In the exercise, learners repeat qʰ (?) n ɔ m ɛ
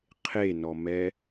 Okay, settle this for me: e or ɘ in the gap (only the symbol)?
e